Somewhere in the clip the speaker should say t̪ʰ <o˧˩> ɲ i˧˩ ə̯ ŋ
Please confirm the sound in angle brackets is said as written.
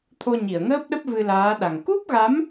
no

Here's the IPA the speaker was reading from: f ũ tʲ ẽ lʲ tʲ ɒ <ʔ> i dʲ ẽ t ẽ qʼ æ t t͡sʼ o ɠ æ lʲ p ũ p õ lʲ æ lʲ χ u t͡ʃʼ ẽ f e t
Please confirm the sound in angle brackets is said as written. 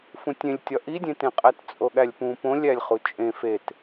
yes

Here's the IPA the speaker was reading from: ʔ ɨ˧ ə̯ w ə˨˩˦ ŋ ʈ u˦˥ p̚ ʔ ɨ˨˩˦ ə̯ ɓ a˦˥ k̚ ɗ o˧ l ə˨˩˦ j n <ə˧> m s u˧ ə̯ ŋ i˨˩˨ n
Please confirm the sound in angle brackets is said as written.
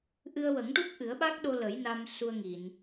no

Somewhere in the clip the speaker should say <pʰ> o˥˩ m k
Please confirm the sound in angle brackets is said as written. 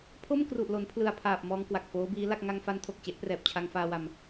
yes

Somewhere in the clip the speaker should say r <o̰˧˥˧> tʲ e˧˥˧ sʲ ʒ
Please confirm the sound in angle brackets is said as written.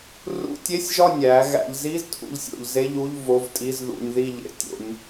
no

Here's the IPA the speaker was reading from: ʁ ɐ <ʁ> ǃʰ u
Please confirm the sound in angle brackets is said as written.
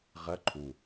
no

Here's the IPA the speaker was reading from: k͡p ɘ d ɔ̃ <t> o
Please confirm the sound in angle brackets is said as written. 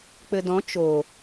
no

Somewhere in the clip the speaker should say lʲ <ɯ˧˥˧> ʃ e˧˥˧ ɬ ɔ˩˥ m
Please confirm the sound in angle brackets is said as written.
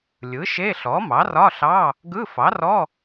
no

